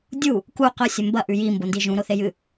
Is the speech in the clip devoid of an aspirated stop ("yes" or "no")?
yes